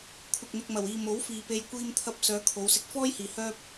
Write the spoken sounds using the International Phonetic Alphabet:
kʷʰɪ˨k̚ n̪ɪ˨k̚mɐ˨˩wiː˨ mo˨˥wfiː˨pe˧j kʷiː˧mt̪ʰɐ˧p̚ sœː˨˧kʰo˨˧wsɪ˧k̚ fɔː˥jhiː˨ hœː˥p̚

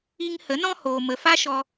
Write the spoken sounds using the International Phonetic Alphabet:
i˧ŋhə˨˦ nɔ̃˦hoː˨ mə˨fa˦ʃɔ˧

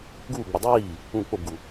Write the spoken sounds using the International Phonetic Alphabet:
ɡuːɡ͡bʏ dˤiː | ũ k͡pobɡu

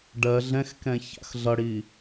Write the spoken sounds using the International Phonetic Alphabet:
ɖɜ ɮɛ̃xkɛ̃ ça̰xɮʌɽi

